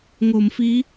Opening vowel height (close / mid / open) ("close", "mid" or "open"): mid